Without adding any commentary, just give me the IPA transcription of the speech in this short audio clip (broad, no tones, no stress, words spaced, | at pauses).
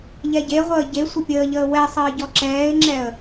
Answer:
ʎɛɟeʁʷəː ɟe sʷəpʲəːʎəː wɛsˤəː ɟɔǁɛːɪ̯ŋ͡ǁɛə̯